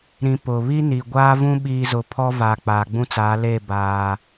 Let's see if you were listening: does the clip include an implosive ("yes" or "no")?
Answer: yes